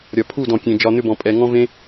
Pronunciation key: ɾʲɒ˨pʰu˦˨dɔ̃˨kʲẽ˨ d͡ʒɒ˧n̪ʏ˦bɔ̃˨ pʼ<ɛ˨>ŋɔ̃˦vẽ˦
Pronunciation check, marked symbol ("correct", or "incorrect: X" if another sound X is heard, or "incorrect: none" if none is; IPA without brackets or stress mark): correct